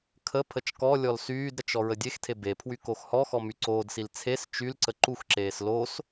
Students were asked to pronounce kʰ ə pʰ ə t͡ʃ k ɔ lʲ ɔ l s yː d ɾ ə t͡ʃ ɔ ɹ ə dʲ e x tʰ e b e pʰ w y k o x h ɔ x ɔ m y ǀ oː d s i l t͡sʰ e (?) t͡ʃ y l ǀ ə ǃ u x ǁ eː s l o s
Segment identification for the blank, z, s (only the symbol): s